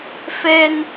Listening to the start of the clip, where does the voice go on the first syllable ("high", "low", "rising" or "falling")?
high